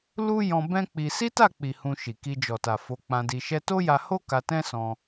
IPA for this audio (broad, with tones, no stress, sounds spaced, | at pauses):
l u˦ j ɔ̃˧ b ɛ̃˦ k͡p i˧ s i˦ t a˦˨ k͡p i˨ h ũ˧ ʃ i˨ k i˧ d͡ʒ ɔ˨ t a˨ f o˨˦ k͡p ã˧ d i˧ ʃ ɛ˧ t o˦ j a˧ h o˦ k a˧ t ɛ̃˦ s ɔ̃˧